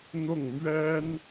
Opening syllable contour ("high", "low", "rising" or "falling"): falling